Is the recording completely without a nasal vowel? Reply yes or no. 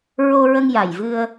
yes